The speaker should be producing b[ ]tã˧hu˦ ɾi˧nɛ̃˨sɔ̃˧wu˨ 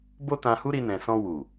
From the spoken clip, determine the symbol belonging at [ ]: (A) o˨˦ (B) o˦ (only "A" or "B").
B